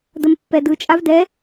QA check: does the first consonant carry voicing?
yes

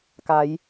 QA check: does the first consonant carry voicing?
no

